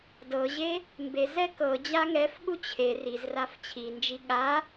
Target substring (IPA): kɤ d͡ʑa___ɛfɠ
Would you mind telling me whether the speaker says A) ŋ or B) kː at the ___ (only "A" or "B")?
A